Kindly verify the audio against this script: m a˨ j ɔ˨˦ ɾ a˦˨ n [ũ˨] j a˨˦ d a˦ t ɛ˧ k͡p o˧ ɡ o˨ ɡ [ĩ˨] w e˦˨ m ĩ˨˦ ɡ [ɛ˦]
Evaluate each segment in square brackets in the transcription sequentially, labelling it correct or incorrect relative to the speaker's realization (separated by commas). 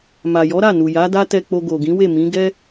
incorrect, incorrect, correct